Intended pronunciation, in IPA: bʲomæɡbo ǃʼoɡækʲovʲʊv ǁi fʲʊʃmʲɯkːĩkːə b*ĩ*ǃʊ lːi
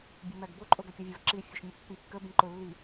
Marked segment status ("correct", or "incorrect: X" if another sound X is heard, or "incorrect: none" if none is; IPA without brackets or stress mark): correct